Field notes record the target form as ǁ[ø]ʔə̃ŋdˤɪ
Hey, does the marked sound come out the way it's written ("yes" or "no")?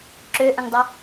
yes